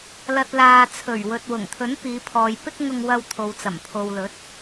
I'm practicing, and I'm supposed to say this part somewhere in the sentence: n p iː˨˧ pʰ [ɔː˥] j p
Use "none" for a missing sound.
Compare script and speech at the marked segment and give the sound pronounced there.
ɔː˨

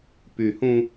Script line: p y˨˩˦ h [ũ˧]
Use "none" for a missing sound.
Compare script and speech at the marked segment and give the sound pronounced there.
ũ˧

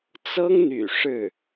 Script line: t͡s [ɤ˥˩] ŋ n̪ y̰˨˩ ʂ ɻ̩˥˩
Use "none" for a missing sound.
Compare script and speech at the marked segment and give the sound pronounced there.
ɤ˥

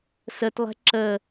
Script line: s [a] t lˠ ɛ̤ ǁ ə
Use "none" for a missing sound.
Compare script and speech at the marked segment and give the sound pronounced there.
ə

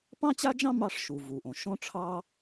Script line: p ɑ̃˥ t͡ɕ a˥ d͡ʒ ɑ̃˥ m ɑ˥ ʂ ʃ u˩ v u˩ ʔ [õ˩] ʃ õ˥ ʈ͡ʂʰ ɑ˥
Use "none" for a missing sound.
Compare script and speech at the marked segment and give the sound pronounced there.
õ˩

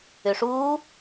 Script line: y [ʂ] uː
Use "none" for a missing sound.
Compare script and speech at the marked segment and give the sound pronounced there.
ʂ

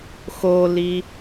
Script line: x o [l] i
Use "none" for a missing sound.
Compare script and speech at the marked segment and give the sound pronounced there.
l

